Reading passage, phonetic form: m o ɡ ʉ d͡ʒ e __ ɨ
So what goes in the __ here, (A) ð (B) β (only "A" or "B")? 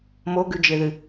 A